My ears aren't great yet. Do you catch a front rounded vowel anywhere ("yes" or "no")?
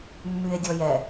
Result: yes